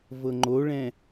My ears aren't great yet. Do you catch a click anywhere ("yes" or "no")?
yes